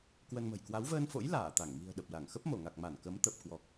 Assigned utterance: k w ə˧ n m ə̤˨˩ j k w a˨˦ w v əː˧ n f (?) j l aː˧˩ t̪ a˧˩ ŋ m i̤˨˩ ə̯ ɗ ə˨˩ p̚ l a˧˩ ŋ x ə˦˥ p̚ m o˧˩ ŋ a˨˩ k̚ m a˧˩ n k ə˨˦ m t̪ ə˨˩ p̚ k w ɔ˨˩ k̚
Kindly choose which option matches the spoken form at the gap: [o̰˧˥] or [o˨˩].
o̰˧˥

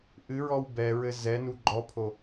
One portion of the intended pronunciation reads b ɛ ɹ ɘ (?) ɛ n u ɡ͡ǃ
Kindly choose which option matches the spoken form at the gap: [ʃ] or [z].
z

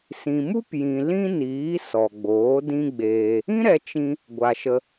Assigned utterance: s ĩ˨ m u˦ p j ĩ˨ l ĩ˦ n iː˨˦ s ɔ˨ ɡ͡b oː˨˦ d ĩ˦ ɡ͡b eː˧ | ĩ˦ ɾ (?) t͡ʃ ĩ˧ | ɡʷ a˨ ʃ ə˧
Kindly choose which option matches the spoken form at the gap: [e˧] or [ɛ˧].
ɛ˧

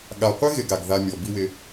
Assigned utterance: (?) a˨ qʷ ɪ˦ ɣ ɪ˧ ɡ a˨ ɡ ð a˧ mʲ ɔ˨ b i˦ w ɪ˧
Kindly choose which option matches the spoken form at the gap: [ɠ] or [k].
ɠ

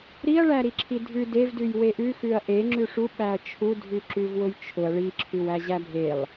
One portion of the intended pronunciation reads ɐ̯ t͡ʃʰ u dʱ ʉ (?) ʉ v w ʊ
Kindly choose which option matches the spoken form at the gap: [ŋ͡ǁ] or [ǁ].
ǁ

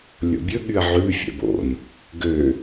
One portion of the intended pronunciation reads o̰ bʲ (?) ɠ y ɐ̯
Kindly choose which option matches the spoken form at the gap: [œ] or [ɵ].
ɵ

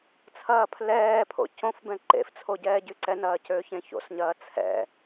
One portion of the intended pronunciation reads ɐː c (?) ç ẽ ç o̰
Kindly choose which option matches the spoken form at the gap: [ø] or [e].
ø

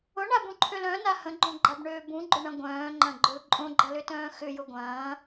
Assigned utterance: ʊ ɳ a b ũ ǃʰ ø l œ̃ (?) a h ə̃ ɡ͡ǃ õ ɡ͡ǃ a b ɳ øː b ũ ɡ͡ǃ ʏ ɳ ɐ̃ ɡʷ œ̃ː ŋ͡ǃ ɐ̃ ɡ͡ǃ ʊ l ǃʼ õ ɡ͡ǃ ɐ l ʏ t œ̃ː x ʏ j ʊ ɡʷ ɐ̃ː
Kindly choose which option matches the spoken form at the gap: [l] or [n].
n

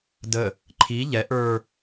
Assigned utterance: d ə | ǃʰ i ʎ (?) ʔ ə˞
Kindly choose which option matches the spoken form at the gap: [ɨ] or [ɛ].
ɛ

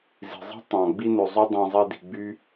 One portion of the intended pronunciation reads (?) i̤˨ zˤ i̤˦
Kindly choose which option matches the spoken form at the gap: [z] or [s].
z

